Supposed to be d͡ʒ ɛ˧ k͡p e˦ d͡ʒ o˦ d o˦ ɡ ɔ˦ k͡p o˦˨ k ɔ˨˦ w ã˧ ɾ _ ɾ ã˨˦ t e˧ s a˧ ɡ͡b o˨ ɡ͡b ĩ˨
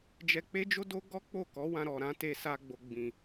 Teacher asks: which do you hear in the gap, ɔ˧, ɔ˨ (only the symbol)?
ɔ˨